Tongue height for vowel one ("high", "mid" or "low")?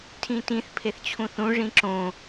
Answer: high